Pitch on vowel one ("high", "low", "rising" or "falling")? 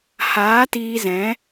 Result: rising